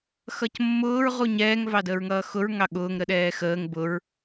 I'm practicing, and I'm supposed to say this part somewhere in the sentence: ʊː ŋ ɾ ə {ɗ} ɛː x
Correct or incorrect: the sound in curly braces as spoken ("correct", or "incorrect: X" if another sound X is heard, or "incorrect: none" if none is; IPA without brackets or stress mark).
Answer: correct